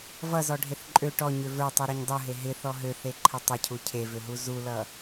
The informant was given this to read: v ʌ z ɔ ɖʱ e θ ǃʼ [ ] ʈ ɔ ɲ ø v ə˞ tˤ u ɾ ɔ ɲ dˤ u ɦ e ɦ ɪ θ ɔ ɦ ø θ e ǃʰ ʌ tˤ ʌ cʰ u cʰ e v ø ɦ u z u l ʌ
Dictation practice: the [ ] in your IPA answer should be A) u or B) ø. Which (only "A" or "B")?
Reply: B